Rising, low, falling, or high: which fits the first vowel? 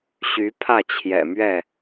rising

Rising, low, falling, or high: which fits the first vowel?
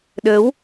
rising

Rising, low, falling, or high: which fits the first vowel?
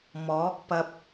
rising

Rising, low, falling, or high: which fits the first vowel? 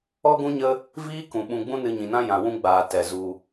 high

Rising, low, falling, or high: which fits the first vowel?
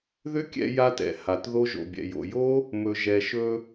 high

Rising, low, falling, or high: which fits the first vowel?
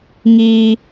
high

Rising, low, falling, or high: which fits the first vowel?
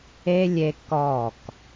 high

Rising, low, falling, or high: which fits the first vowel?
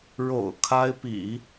low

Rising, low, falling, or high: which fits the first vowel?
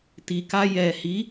low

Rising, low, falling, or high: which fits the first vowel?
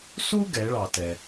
high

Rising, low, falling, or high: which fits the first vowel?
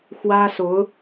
high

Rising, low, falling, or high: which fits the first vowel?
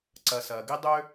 low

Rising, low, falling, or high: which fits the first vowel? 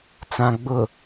low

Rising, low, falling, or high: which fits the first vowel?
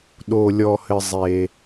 low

